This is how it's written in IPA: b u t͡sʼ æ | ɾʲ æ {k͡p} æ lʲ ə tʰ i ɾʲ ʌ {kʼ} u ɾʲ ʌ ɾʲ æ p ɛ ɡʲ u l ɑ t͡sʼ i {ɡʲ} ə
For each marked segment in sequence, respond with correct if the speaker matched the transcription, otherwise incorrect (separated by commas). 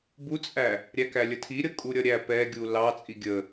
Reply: incorrect, correct, correct